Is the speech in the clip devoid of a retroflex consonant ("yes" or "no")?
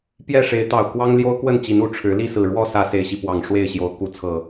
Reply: no